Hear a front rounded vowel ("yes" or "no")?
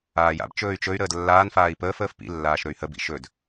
yes